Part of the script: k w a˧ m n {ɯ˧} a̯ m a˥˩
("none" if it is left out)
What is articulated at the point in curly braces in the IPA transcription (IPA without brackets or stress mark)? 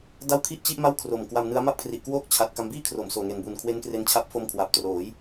ɯ˦˥